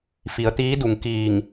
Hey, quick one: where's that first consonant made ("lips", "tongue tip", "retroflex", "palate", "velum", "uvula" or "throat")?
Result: lips